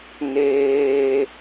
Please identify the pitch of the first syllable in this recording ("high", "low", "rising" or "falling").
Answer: high